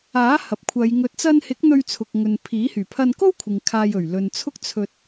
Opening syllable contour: rising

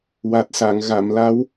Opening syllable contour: low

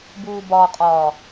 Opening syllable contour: low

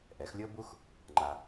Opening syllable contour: rising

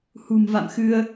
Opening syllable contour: low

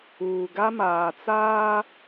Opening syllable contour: low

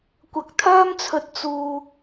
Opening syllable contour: low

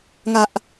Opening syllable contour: low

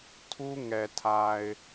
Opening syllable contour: high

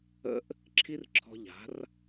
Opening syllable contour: high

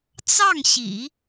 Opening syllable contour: falling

